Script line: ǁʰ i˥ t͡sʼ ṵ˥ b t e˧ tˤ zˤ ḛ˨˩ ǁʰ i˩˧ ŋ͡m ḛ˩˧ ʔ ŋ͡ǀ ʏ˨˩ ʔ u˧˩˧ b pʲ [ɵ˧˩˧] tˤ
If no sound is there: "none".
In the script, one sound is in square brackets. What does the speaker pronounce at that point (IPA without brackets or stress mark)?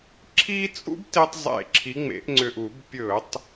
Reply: ɵ˧˩˧